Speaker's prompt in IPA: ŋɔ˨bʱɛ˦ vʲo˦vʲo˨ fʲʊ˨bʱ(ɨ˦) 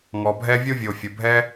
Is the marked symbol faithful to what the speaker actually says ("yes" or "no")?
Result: no